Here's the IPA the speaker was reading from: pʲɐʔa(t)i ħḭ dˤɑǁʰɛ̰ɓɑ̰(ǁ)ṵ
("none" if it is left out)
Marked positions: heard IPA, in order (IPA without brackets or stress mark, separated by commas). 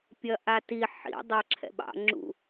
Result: t, ŋ͡ǁ